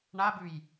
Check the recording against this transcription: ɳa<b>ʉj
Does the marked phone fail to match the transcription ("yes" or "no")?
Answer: no